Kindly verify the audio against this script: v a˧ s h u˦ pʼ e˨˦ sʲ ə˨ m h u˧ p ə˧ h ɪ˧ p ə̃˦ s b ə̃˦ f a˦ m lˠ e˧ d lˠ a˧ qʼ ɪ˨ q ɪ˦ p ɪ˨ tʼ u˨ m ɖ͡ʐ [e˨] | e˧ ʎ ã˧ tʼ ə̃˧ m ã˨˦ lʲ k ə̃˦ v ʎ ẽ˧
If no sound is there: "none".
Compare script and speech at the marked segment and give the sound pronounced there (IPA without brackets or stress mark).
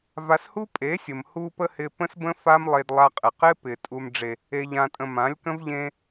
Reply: e˨